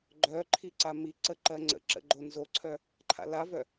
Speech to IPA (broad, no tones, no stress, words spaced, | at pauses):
ɡ͡ǃœǃʰi ǀamiǀəǃɜ ŋ͡ǀə̰ǁə̰ɡ͡ǃo nzoǀʰœ | ǃʰa̰lavœ